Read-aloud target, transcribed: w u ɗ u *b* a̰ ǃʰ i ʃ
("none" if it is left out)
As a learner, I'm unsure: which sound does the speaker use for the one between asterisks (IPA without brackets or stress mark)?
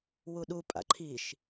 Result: pʼ